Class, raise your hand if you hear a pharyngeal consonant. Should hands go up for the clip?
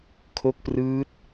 no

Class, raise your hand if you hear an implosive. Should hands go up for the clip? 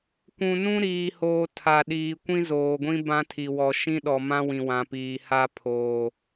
yes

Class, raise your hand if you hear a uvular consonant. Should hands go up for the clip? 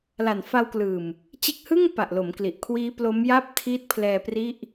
no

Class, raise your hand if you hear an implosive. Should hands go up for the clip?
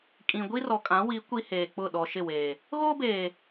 yes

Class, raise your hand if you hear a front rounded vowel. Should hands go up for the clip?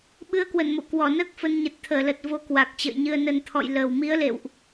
no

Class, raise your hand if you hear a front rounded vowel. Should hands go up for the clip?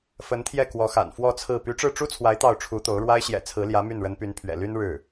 yes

